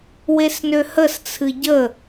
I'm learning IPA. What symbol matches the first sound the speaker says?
w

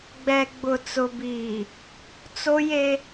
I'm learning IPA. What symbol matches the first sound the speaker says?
ɡ͡b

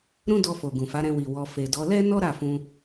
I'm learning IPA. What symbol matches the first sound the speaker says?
ɾ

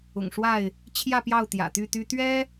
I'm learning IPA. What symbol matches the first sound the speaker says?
ʊ̰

